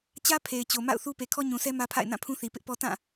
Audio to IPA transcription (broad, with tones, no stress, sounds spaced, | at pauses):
t͡ɕ ä˦ pʰ e˨ ɪ̯ t͡ɕ o˨ m a̰˦˨ ʊ̯ θ u˦ p e˨ kʰ ɔ˦ ɲ ũ˨ sʰ ɛ˦ m ä˦ pʰ a̰˦˨ ɪ̯ n ã˦˨ pʰ ũ˦ θ i˨ p ɪ˦ ʔ p ɔ˦ t ã˦˨